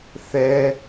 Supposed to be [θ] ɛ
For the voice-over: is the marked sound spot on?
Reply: yes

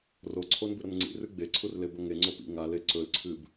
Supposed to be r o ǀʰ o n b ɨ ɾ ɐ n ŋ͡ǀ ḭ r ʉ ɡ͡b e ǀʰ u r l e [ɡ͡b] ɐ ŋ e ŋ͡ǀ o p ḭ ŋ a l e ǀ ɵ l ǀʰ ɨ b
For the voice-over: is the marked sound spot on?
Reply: no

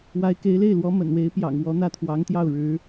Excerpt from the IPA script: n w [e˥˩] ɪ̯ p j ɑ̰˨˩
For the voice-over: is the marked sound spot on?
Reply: no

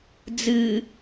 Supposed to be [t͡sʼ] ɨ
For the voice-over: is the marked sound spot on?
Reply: no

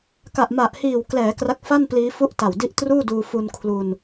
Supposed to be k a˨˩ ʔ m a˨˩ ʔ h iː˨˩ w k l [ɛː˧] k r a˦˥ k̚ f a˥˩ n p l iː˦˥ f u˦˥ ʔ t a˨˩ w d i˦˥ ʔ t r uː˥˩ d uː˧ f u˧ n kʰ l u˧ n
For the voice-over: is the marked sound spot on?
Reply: no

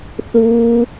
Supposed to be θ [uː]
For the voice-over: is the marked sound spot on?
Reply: yes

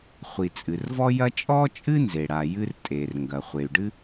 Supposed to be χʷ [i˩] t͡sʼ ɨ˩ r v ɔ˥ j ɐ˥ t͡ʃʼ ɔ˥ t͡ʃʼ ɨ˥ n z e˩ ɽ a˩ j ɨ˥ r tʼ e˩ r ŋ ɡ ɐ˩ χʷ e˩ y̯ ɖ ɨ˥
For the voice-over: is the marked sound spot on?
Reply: yes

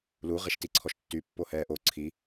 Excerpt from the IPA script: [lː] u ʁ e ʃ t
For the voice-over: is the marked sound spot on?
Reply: no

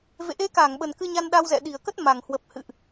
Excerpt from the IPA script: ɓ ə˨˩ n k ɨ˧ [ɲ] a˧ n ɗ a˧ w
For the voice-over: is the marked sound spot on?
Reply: yes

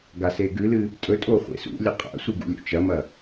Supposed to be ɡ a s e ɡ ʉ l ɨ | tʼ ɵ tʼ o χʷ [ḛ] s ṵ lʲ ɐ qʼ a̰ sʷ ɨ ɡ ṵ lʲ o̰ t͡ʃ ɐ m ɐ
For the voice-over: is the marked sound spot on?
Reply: yes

